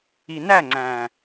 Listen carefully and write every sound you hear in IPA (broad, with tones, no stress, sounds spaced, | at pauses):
i˨ n æ˦˨ ŋ͡ǀ æ̃˨